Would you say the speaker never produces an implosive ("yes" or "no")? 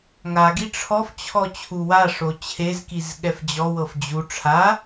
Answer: no